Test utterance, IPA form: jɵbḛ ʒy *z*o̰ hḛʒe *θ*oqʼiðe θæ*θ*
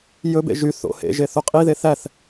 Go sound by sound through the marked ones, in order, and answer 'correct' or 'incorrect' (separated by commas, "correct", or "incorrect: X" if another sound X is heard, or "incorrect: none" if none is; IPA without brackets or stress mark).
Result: incorrect: θ, correct, correct